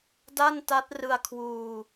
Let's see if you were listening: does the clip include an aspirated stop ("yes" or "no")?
yes